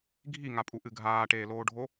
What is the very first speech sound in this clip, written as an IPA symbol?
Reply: ɡʱ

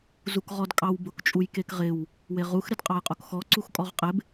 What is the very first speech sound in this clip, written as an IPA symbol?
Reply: z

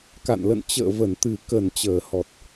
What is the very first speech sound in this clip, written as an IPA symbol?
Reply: k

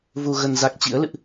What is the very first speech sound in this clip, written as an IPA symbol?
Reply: v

